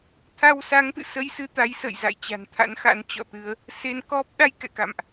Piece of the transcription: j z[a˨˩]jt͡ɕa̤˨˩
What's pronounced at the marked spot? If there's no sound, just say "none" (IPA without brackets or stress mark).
a̰˧˨